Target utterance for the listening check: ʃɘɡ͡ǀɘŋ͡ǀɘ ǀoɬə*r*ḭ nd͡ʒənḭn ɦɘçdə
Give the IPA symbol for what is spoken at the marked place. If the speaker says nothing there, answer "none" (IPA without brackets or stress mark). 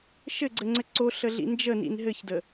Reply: ɮ